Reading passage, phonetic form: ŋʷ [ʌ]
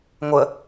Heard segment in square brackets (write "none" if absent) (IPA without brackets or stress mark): ə